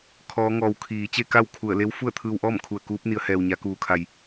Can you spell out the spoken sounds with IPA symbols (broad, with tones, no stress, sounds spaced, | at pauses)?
kʰ ɔː˧˥ ŋ ɔː˧ w kʰ iː˩˧ t͡ɕ e˥˨ k a˥˨ w kʰ u˧˩ ə̯ l e˧˥ w f u˥˨ ə̯ t̪ʰ ɯː˧ w ʔ ɔː˥˨ m kʰ u˧˩ ə̯ k uː˧˥ p̚ n i˩˧ ə̯ h ɛː˩ w ɲ a˩˧ k uː˩ kʰ a˩ j